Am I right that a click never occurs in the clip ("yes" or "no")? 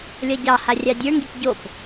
yes